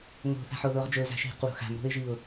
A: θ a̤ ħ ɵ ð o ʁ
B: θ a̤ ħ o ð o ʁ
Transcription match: B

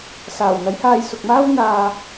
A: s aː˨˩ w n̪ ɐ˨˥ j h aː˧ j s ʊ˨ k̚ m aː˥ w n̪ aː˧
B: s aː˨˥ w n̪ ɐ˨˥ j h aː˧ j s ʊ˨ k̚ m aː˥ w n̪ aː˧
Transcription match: A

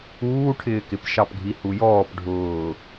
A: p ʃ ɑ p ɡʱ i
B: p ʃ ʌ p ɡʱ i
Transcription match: A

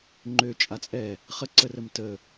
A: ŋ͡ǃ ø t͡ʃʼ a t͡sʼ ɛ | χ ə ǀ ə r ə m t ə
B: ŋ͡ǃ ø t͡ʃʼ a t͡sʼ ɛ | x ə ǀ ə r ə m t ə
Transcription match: A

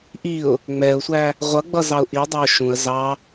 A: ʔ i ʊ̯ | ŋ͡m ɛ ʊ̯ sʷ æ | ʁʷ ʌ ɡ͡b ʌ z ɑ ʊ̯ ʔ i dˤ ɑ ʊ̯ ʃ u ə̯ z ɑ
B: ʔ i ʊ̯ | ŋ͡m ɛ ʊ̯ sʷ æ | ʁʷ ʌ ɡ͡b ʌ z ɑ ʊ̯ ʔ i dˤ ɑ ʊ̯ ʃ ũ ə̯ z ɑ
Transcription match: B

